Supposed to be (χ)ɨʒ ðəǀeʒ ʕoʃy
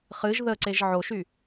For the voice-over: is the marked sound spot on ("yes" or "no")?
yes